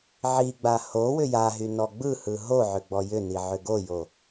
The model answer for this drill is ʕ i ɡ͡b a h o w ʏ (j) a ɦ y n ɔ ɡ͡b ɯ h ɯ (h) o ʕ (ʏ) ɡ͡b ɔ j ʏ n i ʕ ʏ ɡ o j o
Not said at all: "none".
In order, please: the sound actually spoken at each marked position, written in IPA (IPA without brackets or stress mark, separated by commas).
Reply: j, ɦ, ʏ